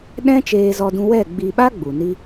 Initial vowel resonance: nasal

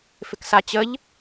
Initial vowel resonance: oral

